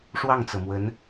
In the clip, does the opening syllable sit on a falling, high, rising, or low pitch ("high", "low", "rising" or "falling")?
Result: falling